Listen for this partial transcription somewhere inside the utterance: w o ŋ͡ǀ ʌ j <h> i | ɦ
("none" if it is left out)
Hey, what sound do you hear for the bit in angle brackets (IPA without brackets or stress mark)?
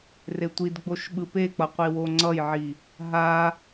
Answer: ʕ